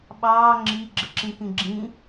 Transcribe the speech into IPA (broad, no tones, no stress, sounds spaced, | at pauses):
ɓ ɑː ŋ͡ǁ i ɡ͡ǁ ə ǁ ĩ k ĩ ɡ͡ǁ ĩ